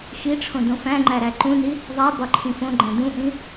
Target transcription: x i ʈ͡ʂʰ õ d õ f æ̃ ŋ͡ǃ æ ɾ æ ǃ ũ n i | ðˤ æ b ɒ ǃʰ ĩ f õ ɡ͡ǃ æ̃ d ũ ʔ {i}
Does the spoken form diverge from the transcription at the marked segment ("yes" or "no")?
yes